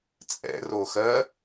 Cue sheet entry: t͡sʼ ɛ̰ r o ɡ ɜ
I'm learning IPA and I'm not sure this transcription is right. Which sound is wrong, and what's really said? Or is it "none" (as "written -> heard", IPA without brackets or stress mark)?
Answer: ɡ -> x